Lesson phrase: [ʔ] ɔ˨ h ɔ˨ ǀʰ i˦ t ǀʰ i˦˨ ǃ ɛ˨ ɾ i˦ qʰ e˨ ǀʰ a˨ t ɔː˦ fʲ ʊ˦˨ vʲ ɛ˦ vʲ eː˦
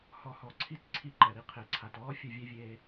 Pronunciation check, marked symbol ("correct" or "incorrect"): incorrect